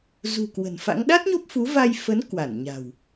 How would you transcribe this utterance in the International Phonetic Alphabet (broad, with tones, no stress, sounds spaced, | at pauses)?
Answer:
z ṳ˨˩ k w ə̤˨˩ n f a̰˧˥ ŋ ɗ a˦˥ t̚ ɲ o˦˥ p̚ f u˨˦ v a˧ j f ə˨˦ n k w a˧˩ n ɲ a̤˨˩ w